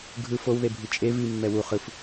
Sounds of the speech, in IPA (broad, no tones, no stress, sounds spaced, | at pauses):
ɡʱ ɯ f o w ð e bʱ i t͡ʃʼ e v i mː ɛ w u χ ɯ f